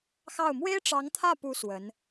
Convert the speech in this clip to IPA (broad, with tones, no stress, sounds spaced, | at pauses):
x ɑ˥˩ ʊ̯ m w e˥ ɪ̯ ʈ͡ʂ ɑ˧˥ ŋ t̪ʰ ä˥˩ p u˧˥ s w ə˧˥ n